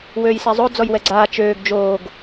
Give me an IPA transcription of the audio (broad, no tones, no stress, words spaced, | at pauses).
wøːjsɛzˤo d͡zɔjwɛɡ͡ǀaː t͡ʃøːɡ d͡ʒoːɡ